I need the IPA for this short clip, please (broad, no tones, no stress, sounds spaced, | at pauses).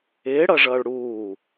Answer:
ɪː ɽ ʌ ʐ ʌː ɭ ɽ uː